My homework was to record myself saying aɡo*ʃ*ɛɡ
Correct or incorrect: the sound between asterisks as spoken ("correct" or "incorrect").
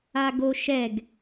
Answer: correct